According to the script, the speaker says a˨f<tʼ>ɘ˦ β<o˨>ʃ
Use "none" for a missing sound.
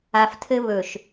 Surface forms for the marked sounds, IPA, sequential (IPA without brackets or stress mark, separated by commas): tʰ, ɵ˨